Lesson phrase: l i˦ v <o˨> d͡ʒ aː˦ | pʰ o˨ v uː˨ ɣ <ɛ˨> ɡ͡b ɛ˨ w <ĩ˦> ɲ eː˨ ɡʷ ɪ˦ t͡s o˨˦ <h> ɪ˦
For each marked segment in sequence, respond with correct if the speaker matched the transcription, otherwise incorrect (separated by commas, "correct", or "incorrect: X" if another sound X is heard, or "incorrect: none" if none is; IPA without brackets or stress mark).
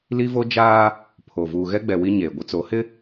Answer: incorrect: o˦, incorrect: ɛ˦, incorrect: i˦, correct